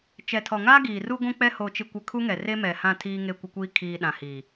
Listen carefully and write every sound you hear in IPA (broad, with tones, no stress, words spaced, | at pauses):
t͡ʃɛ˨tʰɔ˨ŋaː˦ ɡiː˨ ru˦ɡʷũ˦ k͡pɛ˦ ho˨t͡ʃɪ˨kʷɪ˨ kʰu˦ŋɛ˨re˦ mɛ˨hã˦˨ tʰiː˦ŋe˦˨kʷɪ˦kʷiː˦ kʰiː˨ ɗã˨hiː˨